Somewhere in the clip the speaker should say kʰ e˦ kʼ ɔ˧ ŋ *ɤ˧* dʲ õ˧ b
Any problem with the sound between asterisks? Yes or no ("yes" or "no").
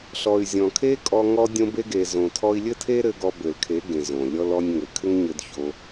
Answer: yes